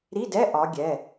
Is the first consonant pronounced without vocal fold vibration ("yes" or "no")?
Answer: no